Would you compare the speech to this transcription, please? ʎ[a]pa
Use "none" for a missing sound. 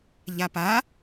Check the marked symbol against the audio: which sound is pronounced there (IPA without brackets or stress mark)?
a